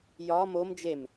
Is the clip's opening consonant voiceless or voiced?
voiced